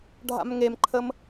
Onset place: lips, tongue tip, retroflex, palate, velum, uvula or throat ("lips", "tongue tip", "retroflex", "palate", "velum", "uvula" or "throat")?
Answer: retroflex